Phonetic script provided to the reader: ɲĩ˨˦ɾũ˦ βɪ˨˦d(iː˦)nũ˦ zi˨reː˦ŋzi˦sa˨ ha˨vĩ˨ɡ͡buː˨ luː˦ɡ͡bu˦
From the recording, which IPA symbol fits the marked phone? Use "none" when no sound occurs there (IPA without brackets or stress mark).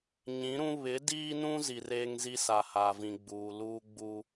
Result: iː˦